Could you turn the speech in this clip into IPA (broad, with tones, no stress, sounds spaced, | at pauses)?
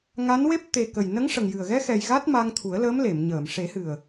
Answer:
ŋ a˧˥ n w e˦˥ p̚ t̪ e˨˩ k ə˨˩ j n ə˧˥ ŋ ʂ ə˨˩ ŋ j ɨ˨˩ ə̯ ɣ ɛ˧ x ɛ˨˩ j ɣ a˦˥ t̚ m a˧ ŋ t̪ʰ u˨˩˦ ə̯ l əː˧˥ m l e˨˩˨ m ɲ əː˨˩˨ m ʂ e˨˩˦ h ɨ˨˩ ə̯